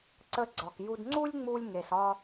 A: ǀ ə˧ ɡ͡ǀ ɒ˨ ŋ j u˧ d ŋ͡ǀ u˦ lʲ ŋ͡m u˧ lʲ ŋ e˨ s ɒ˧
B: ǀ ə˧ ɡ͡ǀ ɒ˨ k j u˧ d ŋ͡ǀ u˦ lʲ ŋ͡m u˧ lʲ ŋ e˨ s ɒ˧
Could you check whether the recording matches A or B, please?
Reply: B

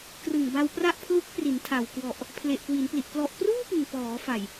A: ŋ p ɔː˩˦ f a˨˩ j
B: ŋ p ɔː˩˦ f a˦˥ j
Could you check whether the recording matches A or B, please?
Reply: A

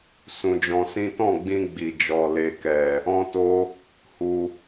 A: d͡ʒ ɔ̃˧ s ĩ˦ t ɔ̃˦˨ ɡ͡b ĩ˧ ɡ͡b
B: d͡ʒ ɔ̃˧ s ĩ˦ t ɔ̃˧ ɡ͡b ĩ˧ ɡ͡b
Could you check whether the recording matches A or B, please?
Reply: A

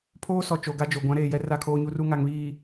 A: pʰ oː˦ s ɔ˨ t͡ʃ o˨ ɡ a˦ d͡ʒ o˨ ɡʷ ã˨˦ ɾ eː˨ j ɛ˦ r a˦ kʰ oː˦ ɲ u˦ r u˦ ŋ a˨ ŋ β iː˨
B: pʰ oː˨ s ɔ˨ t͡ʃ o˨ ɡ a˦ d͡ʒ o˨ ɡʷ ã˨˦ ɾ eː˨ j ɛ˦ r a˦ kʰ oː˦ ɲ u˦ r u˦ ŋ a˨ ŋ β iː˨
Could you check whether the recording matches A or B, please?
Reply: A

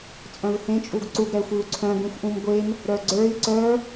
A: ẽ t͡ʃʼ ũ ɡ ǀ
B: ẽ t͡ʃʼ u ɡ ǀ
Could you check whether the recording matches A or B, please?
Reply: B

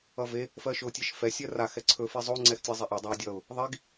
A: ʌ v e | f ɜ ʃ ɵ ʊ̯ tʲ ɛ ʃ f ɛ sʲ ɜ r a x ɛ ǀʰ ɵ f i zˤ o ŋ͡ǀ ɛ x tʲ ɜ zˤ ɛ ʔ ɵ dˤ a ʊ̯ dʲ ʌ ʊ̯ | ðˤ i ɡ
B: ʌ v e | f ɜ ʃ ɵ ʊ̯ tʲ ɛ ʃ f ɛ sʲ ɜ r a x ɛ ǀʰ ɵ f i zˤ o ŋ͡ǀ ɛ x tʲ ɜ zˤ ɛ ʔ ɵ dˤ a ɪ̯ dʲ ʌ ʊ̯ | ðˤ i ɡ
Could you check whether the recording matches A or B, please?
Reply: A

